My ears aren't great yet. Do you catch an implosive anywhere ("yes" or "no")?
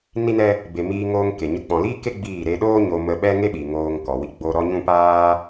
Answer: yes